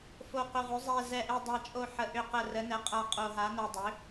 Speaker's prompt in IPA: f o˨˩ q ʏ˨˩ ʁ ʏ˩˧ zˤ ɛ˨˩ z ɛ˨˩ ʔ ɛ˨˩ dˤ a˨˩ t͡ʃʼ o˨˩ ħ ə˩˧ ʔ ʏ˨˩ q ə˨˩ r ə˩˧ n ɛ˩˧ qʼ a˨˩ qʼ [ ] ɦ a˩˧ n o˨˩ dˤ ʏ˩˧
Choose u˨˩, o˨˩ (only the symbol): o˨˩